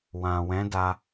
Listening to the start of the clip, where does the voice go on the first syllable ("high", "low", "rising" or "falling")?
low